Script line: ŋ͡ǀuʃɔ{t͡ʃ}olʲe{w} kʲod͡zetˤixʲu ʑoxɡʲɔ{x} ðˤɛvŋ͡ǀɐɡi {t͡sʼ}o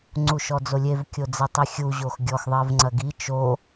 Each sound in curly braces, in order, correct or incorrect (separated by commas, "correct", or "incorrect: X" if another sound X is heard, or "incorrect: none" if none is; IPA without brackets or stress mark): incorrect: d͡z, incorrect: v, correct, incorrect: t͡ʃ